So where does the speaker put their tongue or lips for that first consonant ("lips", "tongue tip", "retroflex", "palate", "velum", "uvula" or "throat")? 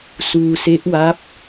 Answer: tongue tip